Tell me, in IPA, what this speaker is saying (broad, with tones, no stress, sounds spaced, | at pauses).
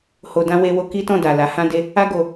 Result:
h o˧ d ã˧ w e˧ w o˧ k i˦ t ɔ̃˦˨ d a˨ l a˨˦ h ã˧ d e˧ | a˦ ɡ o˧